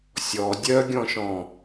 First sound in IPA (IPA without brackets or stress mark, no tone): sʲ